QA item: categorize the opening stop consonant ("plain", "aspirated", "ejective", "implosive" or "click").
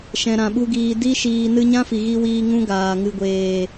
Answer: implosive